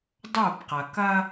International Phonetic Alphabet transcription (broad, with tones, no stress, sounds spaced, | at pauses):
dˤ o˦˨ b q ɐ˨ k ɐ˦